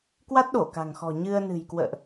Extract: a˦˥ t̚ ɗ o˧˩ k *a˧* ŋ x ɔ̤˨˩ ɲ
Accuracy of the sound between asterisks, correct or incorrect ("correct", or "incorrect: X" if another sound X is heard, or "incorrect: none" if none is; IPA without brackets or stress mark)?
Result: incorrect: a̤˨˩